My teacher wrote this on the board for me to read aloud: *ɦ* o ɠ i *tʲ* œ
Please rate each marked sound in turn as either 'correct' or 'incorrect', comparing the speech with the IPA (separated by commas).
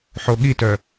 incorrect, incorrect